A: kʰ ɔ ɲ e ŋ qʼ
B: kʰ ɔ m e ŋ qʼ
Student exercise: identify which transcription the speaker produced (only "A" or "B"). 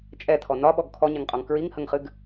A